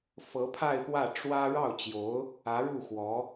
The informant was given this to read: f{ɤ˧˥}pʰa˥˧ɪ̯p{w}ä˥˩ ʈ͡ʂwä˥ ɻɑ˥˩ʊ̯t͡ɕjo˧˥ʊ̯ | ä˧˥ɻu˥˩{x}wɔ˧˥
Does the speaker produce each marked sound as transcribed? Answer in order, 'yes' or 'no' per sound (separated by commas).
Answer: yes, yes, yes